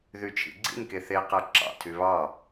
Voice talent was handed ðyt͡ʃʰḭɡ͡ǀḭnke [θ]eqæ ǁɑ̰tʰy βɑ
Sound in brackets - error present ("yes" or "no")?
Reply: no